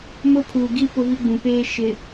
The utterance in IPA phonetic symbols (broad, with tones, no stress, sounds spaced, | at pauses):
m ʊ˦ pʰ uː˨ ɡ i˦ p ʊ˦ v i˦ ɡ͡b ũ˨ p eː˦ ʃ ɪ˨